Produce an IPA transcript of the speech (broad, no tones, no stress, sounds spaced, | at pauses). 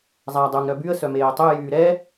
zˤ æ dˤ u ŋ ɾ œ b y ə̯ s œ m eː tˤ y j yː ɾ ɛ